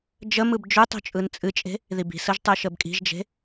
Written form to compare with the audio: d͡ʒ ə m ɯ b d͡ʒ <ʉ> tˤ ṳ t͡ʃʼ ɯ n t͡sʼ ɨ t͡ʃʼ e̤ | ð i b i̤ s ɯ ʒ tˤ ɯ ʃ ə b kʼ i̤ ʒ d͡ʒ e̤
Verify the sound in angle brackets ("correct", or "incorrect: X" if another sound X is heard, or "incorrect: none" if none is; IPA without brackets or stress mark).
correct